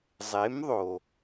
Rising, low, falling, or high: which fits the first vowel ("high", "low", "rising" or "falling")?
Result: rising